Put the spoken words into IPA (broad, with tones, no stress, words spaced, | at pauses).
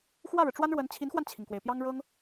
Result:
xwä˥˩ɻɻ̩˩ ʈ͡ʂwa˥nɻwə˧˥n t͡ɕʰi˧˥nxwa˧nt͡ɕʰi˩ŋkwe˩ɪ̯ pjɑ˥ŋ ɻɤ˥ŋ